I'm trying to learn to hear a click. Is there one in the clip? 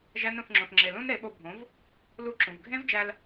yes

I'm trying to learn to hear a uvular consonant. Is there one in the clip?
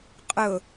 yes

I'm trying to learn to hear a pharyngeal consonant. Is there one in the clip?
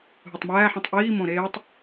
yes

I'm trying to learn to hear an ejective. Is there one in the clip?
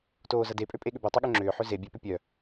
yes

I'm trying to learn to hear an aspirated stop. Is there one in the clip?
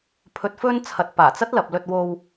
yes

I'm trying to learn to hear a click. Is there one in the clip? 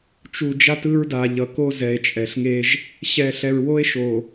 no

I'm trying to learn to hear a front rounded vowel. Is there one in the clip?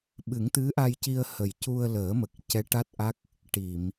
no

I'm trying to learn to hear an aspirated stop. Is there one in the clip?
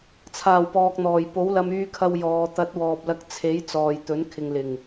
yes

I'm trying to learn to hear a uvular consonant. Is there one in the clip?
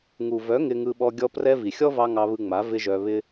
no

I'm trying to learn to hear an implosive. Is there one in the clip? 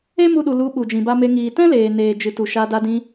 yes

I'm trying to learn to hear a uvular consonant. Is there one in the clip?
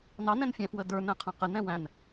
yes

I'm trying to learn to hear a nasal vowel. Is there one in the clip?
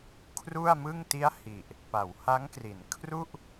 no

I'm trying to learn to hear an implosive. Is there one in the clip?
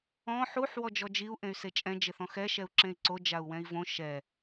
no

